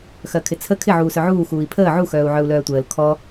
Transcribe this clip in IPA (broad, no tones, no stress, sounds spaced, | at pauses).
x ɜ kʰ ɪ t͡sʰ ə kʰ ɪ ʕ uː s œ ʕ uː x uː i̯ pʰ əː ʕ u x œː u̯ ʕ œ u̯ l œː tʷ əː l kʰ ɔ